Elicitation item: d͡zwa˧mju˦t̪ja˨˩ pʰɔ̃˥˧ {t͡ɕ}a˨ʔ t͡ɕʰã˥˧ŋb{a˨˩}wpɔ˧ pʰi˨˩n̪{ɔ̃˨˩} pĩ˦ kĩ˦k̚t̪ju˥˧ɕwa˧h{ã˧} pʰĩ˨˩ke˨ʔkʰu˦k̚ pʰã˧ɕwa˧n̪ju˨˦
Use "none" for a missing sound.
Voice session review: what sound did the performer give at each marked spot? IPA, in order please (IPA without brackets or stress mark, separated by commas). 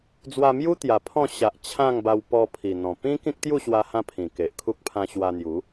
ɕ, a˧, ɔ̃˨˩, ã˧